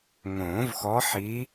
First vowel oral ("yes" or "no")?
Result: no